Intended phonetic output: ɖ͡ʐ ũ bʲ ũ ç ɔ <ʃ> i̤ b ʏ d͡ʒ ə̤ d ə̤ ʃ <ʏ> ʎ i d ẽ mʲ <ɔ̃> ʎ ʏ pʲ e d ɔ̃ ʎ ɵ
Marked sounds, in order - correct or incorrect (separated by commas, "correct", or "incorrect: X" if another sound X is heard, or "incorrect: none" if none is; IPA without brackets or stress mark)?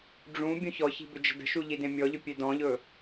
incorrect: ç, incorrect: u, incorrect: ɔ